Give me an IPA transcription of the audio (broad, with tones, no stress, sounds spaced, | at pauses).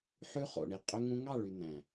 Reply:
ħ ʉ˦ χ o̰˨ ɳ i˨ qʼ ø˦ ŋ ũ˦ ŋ ɑ˦˨ ɭ y˨ n̪ æ̃˨